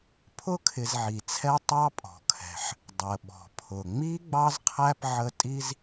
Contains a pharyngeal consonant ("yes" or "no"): yes